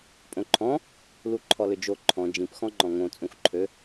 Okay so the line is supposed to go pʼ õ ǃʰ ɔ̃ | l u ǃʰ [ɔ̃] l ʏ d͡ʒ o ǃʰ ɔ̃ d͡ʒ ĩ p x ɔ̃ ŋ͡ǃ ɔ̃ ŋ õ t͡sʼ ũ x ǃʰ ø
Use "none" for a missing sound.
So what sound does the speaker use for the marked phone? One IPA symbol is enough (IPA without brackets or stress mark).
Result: ɔ